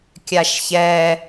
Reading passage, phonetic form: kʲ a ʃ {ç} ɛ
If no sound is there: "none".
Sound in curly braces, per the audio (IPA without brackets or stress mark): ç